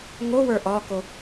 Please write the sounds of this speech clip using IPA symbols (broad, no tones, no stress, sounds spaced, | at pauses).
ŋ o w ə˞ ʔ ɒ k o